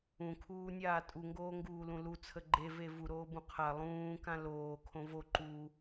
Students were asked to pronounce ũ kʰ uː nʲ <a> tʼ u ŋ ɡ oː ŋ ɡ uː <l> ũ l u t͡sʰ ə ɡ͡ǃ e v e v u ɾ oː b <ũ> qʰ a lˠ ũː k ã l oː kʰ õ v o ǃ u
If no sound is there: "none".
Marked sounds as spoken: aː, l, ũ

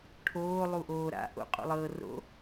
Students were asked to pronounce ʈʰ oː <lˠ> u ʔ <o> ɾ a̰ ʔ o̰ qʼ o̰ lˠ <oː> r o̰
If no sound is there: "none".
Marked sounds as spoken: lˠ, oː, ɤː

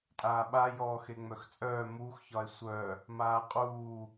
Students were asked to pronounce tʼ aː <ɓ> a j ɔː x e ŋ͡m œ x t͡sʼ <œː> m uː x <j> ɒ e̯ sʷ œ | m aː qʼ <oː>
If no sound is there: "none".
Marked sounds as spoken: ɓ, œː, ç, uː

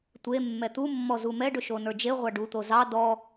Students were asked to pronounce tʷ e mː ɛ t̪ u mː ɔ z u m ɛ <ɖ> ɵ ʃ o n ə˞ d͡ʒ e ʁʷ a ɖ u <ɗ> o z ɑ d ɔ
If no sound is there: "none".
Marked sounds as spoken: ɖ, t̪

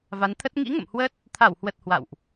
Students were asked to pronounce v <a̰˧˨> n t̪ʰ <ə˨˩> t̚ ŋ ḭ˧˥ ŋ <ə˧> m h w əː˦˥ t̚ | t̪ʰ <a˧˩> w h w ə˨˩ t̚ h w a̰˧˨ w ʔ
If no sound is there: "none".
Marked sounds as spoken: a˨˦, ə˦˥, ə̰˧˨, a˧˩

